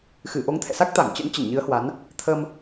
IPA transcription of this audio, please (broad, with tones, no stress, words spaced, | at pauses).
xɨ˧˩ʔo˨˦ŋt̪ʰɛ̰˧˨sa˦˥k̚ t̪a˧˩ŋt͡ɕə̰˧˥n t͡ɕə˧˩nɲɨ˨˦ə̯hwa˨˦n | t̪ʰə˧m